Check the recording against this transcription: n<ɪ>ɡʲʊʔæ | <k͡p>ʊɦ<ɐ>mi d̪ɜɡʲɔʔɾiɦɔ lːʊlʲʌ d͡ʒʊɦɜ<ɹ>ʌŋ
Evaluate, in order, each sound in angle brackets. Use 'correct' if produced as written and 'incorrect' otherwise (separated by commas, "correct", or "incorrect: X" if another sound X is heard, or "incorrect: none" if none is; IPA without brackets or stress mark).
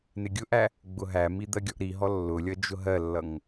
correct, incorrect: ɡ͡b, incorrect: æ, incorrect: lː